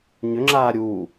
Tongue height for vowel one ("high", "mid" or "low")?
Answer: high